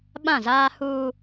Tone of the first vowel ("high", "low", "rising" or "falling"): falling